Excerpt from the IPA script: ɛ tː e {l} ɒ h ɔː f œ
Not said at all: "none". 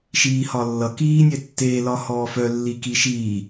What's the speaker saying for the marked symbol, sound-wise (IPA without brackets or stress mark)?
l